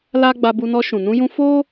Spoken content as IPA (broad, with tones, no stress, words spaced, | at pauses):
la˦ ɡ͡ba˧bu˧nɔ˧ ʃũ˨nũ˧jũ˧ fo˦